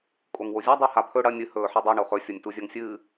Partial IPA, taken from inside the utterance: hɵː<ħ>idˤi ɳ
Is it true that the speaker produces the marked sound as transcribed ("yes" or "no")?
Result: yes